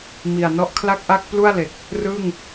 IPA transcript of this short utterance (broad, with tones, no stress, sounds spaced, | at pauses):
m i˨˩ a̯ n ɔ˦˥ ʔ kʰ l a˥˩ k̚ ʔ a˥˩ k̚ p l u˥˩ a̯ l e˨˩ k̚ | r ɯ˥˩ ŋ